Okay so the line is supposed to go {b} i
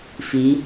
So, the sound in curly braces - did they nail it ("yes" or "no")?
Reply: no